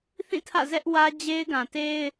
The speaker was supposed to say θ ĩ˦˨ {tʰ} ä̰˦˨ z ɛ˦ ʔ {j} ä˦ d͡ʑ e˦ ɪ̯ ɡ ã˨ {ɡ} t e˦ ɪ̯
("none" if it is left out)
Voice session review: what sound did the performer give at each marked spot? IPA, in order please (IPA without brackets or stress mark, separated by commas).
tʰ, w, none